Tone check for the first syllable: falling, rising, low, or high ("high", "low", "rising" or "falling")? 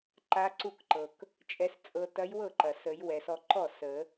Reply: rising